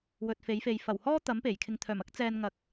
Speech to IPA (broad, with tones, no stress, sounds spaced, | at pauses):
w ɵ˨ t̚ f e˨˥ j f e˨ j f ɐ˨˩ w h ɔː˥ t̪ ɐ˨˥ m p e˨˩ j kʰ ɪ˨ ŋ t̪ʰ œː˨˩ m ɐ˥ k̚ t͡s ɛː˨ n ŋ ɐ˨˥ k̚